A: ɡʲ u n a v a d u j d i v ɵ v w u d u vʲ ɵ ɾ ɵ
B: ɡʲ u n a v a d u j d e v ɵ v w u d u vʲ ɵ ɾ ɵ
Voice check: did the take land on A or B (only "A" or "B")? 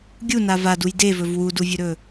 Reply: B